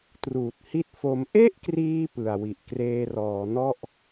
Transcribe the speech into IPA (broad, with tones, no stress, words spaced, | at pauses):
truː˨˩t̚hi˦˥t̚fo˧m ʔe˥˩ʔkriː˧ pɯ˨˩a̯wi˨˩ʔ kreː˧rɔː˩˦nɔ˥˩ʔ